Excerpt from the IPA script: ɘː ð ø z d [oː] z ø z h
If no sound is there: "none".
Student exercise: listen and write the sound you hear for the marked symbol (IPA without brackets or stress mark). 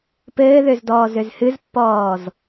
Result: ɔː